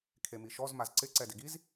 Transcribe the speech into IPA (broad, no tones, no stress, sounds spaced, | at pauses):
kʰ e m i ʃ ɔ z m a z ǀ ɪ ǀ ɛ d ɪ ɡ i z